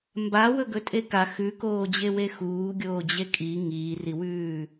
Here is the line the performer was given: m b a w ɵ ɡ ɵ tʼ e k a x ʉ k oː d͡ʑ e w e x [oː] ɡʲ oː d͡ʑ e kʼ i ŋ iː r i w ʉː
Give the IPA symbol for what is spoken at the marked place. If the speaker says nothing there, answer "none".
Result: uː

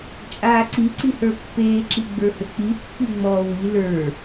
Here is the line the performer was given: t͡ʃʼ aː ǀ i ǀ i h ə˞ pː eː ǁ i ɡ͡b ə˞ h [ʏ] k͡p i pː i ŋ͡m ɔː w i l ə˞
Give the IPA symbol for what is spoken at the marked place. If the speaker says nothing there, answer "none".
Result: ʏ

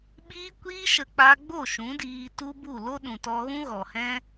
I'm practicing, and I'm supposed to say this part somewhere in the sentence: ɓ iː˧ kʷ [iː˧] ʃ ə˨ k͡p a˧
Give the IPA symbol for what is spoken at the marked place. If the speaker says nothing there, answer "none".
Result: iː˧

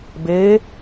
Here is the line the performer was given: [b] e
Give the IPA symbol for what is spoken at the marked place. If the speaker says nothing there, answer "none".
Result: b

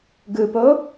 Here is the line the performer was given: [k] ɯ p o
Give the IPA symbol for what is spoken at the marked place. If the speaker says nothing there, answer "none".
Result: ɡ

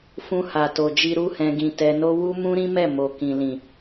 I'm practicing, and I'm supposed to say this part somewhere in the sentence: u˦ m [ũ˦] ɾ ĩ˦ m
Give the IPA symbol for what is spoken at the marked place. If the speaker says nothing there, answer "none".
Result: ũ˦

